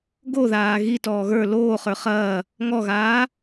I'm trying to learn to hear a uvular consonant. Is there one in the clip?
yes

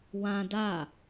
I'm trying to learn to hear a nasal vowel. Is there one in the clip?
yes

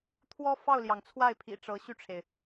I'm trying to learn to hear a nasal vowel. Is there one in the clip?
no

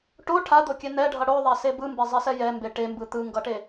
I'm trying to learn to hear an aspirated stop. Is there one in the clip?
yes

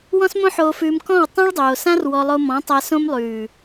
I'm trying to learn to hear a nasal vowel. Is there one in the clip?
yes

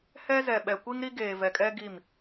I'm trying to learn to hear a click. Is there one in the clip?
no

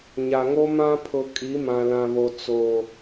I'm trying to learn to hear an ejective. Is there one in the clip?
yes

